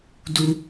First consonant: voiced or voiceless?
voiced